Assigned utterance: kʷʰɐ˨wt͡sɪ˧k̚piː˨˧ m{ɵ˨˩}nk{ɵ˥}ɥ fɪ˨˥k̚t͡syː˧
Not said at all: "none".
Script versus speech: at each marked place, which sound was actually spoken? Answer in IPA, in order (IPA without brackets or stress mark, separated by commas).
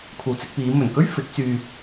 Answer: ɵ˨˩, ɵ˥